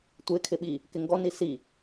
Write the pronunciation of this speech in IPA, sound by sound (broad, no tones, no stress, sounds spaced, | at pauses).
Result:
tʷ ɪ kʰ ɪ ɓ i | k ɪ ŋ ɡ ɔ n i s i